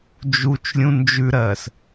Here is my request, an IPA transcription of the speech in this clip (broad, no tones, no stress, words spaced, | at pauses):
d͡ʒut͡ʃlʲũ nd͡ʒʉɾɜːs